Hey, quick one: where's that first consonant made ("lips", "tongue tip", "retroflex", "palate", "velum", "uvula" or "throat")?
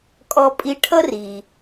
velum